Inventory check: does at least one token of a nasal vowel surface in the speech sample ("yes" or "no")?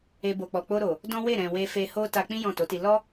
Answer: yes